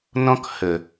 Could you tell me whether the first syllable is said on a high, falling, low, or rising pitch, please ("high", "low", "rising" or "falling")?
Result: high